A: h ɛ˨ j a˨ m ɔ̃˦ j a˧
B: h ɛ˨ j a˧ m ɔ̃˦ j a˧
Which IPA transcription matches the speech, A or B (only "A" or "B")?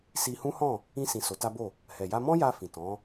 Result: B